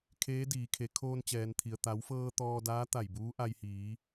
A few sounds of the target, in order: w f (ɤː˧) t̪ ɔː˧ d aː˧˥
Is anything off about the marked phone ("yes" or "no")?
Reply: no